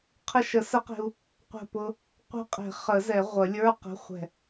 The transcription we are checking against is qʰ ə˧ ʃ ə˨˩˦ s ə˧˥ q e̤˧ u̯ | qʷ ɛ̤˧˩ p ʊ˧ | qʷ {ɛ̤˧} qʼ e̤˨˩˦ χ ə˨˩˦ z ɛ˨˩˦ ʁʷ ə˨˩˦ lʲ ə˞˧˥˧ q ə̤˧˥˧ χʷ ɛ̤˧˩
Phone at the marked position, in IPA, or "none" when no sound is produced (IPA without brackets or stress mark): ɛ̤˧